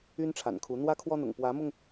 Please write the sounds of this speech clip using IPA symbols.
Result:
y˦ n ʈ͡ʂʰ a̰˨˩ n kʰ u˨˦ n̪ w ä˦ kʰ w ɔ˦ n̪ ʊ̰˨˩ ŋ p w ä˨˦ m ʊ˧ ŋ

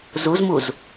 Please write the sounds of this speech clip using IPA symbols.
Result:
z u z m u z

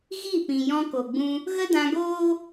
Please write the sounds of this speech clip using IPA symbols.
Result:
ɣ i˦˨ p ĩ˨ j ɔ̃˧ k o˨ ɡ͡b ũ˧ | ɣ ə˦ d ã˧ ɡ oː˦

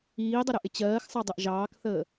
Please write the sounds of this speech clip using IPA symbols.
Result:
iː dˤ ʊ ɾ ʊ ʔ ɪ t͡ɕ ɜː x sˤ ɑ dˤ ʊ ʔ ʒ ɑː k θ əː

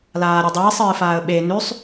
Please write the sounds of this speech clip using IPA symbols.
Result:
l aː ɾʲ ɵ dˤ iː sˤ ɨː f aː ə̯ ɓ e n ʉ sˤ

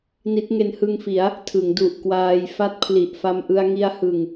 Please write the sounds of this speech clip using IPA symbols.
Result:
n i˦˥ t̚ ŋ e˧ n h ɯ˧ ŋ f i˩˦ a̯ | tʰ ɯ˩˦ ŋ d u˨˩ ʔ k w aː˧ j f a˥˩ t̚ pʰ l i˨˩ ʔ f a˧ m ʔ ɯ˧ a̯ ŋ i˧ a̯ h ɯ˨˩ ŋ

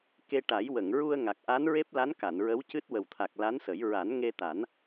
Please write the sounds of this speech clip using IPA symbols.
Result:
k e˧ ʈ a˨˩˦ j w ə˨˩˨ ŋ ɹ u˧ ə̯ ŋ a˨˩ k̚ ʔ a˧˥ n ɹ e˦˥ p̚ l a˧˥ n k a˨˩˨ n ɹ ə˧˥ w c ɨ˦˥ t̚ w ə˨˩ w t̪ʰ a˨˩ k̚ l a˧˥ n s ə˨˩˦ j ɹ a˨˩˦ n ŋ e˧ t̪ a˨˩˦ n

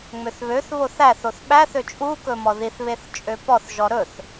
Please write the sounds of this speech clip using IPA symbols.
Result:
ŋ͡m ø θ β ø θ β o θ æ θ o θ ɓ æ θ ø t͡ʃʼ u k ɵ m ɔ ð i θ β e θ t͡ʃʼ ø p ɔ θ ʒ ɔ ɾ ɵ θ

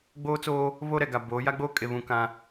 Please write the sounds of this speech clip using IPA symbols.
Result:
ɡ͡b oː˦ t͡s oː˦ | β o˦ ɾ ɛ˨ ɡ a˨ b oː˨˦ j a˦ ɡ͡b oː˦ kʼ e˨ β ũ˨ k ã˦

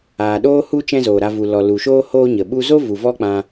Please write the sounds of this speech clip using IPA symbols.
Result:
aː˨ ɗ oː˦ h u˦ t͡ʃ ɛ̃˦ z oː˨ ɾ a˧ v u˨ l ɔ˨ l u˨ ʃ oː˦ h oː˦ ɲ ə˨ ɓ u˧ z o˦ v u˨ v ɔ˦ k͡p ã˧

